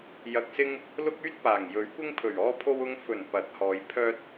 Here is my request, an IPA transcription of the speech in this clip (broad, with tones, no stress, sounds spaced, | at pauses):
j ɐ˨ k̚ s ɪ˧ ŋ | l ʊ˥ k̚ yː˥ t̚ p aː˨˩ ŋ j ɵ˨˥ ɥ kʷ ɪ˥ ŋ pʰ ɵ˨˩ ɥ ɔː˧ pʰ o˧ w ʊ˧ ŋ f ɵ˨˩ n p ɐ˨˥ t̚ h ɔː˨˧ j pʰ œː˧ t̚